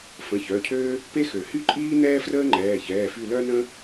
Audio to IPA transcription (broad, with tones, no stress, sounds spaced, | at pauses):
f ə̃˩˧˩ ç œ˩˧˩ cʰ øː˥ | p e˥ x ø˩ h y˥ ǃʼ iː˥ n ɛː˥ f r əː˥ ŋ͡ǃ ɛː˩˧˩ ç ɛː˩˧˩ f y˦˨ l œ˥ n ə̃˥